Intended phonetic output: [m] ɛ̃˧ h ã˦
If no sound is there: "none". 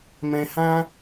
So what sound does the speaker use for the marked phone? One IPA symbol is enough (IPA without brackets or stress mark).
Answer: m